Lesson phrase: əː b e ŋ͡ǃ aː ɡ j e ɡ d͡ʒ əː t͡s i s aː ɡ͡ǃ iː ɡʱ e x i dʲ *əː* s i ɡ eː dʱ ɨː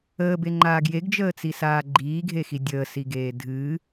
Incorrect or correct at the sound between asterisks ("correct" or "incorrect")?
correct